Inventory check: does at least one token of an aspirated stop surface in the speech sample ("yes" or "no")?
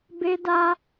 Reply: no